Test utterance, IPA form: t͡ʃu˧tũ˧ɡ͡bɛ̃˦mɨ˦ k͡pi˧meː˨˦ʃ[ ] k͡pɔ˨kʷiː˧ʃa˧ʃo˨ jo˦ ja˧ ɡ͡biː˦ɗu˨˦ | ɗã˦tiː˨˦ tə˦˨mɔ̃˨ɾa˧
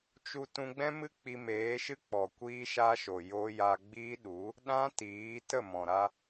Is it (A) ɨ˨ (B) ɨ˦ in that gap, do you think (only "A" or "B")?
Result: B